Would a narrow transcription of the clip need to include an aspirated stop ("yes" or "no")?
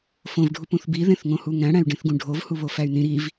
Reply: no